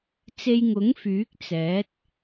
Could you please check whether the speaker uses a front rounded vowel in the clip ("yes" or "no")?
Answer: yes